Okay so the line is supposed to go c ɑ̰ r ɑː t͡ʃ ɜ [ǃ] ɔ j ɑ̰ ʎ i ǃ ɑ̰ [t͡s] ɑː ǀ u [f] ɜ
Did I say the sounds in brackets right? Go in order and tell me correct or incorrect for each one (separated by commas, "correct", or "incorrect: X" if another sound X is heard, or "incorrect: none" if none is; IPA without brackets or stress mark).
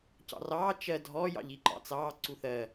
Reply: incorrect: dʱ, correct, incorrect: θ